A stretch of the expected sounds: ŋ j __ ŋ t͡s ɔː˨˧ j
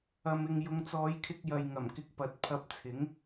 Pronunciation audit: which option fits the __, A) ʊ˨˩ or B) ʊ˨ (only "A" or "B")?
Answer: B